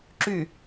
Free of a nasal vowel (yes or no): yes